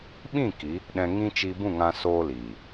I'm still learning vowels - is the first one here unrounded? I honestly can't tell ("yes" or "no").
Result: yes